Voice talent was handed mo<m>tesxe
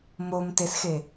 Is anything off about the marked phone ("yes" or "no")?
no